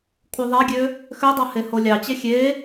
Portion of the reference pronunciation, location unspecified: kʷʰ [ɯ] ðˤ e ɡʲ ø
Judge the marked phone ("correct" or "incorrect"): correct